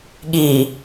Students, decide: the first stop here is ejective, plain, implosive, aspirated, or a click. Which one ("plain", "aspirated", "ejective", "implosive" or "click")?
implosive